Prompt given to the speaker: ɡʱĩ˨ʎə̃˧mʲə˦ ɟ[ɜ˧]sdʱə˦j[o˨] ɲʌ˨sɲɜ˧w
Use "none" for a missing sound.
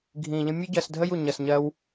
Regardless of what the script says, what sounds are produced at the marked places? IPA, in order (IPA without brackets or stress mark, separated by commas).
ɜ˧, u˨